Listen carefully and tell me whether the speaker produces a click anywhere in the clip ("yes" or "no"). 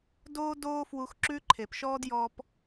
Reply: yes